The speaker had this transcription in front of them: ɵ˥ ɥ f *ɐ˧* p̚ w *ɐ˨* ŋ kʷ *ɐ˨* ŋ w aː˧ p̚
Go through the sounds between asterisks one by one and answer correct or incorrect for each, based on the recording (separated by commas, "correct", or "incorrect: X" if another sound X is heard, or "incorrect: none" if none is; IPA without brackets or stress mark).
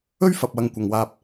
correct, incorrect: ɐ˧, correct